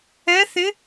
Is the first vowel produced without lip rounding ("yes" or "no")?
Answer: yes